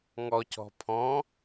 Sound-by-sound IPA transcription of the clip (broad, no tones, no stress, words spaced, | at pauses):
ŋɔcɔ̤ pʰɔ̃